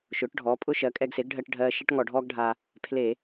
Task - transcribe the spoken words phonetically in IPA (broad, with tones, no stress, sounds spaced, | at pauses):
ʃ ʊː˩˥ ʈ ɖʱ ɔː˩˥ pʼ ʊ˥ ʃ ɜ˩˥ kʼ ɛ˧ ɡ s e˩˥ ɡ ɖʱ ɜ˧ ʈ ɖʱ ɜː˧ ʃ e˥ ʈ ŋ ɔ˧˩˧ ɖʱ ɔː˥ ɡ ɖʱ aː˧ | pʰ l eː˧˩˧